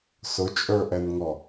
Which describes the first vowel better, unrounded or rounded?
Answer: rounded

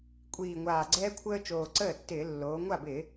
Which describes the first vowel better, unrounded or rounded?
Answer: unrounded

